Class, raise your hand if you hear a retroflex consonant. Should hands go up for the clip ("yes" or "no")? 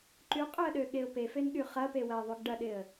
yes